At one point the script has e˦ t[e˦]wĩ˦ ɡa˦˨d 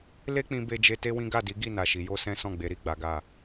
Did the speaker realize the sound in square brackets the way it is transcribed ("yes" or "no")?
yes